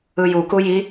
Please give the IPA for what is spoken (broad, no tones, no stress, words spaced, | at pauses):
ɯjuku ji